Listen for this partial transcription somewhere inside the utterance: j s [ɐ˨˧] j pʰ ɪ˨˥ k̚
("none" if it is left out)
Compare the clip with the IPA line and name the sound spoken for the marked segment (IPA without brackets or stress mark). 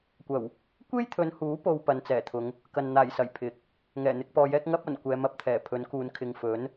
ɐ˨˩